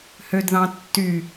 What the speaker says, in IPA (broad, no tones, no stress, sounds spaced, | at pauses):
h ø d ð ɑ̃ tː y